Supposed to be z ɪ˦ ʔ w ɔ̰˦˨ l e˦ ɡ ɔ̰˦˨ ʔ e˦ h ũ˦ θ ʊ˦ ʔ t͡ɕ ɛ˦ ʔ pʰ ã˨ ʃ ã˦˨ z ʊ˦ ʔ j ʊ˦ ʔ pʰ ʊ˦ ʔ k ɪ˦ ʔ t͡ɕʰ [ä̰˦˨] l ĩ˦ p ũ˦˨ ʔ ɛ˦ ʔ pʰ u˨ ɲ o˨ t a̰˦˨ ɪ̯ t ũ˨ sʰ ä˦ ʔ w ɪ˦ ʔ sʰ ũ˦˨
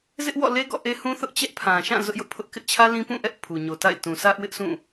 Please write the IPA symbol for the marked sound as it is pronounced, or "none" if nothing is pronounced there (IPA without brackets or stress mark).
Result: ä˦